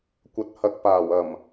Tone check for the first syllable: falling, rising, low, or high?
low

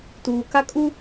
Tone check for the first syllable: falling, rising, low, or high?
low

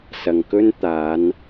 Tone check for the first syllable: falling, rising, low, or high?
low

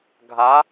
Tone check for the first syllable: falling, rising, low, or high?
rising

